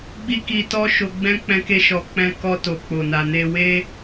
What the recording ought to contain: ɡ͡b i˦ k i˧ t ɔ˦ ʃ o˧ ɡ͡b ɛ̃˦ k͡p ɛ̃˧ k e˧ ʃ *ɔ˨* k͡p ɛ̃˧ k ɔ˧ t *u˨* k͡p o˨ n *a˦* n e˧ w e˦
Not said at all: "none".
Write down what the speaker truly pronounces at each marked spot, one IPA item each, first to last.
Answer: ɔ˨, o˨, a˨

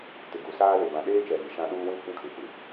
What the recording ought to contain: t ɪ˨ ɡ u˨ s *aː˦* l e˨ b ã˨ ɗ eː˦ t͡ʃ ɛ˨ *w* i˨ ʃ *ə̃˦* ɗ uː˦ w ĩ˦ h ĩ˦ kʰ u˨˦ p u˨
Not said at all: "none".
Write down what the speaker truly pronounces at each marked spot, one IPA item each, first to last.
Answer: aː˦, ɣ, ã˦

